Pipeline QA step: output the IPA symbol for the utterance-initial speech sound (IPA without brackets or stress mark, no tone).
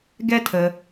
ɡ